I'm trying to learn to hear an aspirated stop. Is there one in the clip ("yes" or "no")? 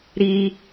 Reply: no